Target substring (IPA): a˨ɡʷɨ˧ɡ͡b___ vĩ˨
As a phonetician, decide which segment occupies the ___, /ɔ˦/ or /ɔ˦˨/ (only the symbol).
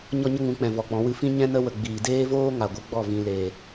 ɔ˦˨